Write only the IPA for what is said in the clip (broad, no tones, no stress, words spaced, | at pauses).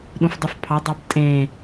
ɗũfdˤufpʰɑdˤɑb tʼẽ